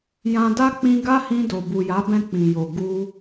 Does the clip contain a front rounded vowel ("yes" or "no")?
no